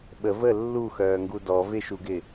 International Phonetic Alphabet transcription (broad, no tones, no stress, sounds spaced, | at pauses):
ɓ ə v ə lː u x œː ŋ ɡ u d ɔ v ɪ ʃ u ɡ ɪ